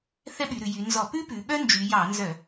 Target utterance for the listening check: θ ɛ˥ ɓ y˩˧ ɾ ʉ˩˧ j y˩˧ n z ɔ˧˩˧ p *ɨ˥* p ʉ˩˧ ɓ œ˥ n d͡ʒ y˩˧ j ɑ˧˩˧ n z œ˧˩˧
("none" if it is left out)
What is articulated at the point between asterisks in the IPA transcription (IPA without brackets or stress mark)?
ʉ˥